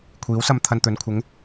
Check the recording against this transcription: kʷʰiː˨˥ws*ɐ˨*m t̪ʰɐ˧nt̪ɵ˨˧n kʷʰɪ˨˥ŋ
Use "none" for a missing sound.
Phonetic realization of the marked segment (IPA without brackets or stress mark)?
ɐ˧